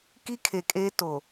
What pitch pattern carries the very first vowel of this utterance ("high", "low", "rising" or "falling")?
high